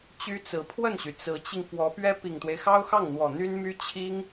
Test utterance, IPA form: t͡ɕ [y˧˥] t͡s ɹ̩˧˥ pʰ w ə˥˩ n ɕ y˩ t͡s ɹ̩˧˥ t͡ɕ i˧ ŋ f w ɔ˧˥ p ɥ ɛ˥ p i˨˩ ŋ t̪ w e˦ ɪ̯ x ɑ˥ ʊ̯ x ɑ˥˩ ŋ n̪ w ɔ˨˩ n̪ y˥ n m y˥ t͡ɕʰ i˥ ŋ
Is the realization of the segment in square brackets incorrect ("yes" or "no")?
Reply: yes